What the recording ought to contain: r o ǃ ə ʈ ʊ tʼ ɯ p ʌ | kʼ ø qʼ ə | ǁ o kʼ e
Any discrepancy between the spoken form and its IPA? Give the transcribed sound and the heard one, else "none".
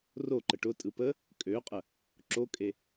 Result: ʌ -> ə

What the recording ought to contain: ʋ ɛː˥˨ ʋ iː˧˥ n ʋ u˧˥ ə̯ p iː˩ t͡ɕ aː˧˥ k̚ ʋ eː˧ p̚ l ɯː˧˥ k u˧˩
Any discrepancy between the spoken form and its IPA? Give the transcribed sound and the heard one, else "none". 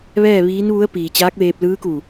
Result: none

